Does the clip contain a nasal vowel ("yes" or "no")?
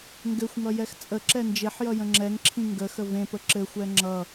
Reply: yes